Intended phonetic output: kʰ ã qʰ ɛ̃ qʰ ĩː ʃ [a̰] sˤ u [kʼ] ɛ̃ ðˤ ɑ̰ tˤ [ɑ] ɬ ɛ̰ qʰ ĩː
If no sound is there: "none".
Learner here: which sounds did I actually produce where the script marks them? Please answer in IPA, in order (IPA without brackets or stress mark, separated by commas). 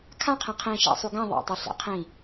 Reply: a̰, ɡ, ɑ